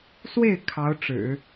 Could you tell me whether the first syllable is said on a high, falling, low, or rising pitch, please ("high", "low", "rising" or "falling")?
falling